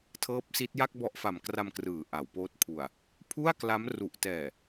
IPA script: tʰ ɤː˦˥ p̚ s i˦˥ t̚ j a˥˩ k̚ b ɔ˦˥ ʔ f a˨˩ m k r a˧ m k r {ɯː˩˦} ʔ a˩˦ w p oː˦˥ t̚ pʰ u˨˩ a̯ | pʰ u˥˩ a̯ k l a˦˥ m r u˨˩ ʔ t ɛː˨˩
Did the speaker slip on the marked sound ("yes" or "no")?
no